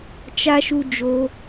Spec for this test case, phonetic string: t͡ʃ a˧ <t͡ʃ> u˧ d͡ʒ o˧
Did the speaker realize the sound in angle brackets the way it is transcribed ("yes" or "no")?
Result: no